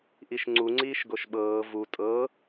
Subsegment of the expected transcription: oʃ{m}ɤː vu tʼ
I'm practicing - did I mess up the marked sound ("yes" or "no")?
yes